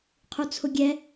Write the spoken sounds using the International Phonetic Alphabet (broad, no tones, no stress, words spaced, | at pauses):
qʰut͡sʰʊɡʲɛ